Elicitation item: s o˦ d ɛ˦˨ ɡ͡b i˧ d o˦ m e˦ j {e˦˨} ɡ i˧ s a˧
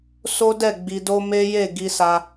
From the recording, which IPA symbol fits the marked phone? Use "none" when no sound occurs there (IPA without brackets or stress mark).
e˦˨